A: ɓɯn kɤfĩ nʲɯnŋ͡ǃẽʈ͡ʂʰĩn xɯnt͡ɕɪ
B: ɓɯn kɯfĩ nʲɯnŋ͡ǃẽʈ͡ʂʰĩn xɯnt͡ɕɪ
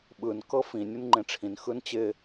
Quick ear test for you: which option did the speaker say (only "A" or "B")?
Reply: A